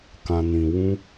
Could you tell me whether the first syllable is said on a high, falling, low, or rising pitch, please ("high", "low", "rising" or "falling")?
low